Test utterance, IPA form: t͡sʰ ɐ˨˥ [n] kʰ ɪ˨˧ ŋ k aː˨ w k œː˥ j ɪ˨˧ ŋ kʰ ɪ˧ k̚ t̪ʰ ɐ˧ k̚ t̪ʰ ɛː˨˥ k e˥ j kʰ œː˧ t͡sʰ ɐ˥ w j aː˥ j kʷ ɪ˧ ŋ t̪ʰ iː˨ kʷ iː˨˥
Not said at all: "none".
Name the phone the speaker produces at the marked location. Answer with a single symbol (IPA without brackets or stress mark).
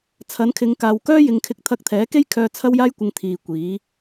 n